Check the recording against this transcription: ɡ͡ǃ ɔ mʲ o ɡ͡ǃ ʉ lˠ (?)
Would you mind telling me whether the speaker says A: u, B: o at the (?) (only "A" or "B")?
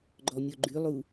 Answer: A